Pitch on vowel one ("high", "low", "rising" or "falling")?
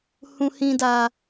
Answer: low